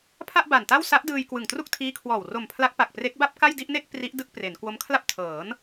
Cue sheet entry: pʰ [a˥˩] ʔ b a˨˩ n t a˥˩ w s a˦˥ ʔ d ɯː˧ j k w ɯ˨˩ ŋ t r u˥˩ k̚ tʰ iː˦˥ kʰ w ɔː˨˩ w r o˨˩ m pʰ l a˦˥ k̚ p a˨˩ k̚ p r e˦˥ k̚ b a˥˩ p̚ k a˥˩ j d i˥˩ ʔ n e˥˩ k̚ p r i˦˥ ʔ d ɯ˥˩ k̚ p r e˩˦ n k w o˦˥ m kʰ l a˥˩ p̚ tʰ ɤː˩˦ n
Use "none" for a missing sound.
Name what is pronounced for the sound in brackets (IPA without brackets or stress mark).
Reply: a˥˩